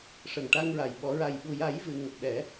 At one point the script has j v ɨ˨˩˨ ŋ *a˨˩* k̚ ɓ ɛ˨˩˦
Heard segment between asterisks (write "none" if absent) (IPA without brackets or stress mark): ə˨˩